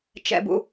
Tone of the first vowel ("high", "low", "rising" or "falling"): low